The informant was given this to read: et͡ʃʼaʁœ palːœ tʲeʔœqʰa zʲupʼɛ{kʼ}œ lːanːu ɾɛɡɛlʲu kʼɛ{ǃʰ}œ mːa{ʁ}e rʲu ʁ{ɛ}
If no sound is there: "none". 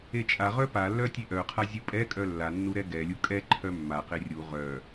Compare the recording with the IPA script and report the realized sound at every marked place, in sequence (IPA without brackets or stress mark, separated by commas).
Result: kʼ, ǃʰ, q, œ